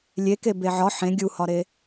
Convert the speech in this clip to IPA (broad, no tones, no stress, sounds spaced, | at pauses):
lʲ e k e b e ʕ ɒ ħ ẽ ɡʲ u h ɒ ɾ e